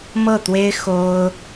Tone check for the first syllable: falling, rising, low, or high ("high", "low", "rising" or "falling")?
falling